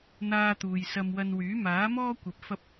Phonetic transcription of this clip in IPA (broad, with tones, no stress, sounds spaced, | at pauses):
n̪ aː˧ t̪ uː˨ j s ɐ˧ m w ɐ˧ n w yː˨˥ m aː˨˥ m ɔː˥ kʷ ɐ˨˥ p̚ f ɐ˥ p̚